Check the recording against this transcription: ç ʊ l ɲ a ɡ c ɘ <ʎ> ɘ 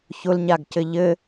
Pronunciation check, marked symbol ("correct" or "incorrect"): correct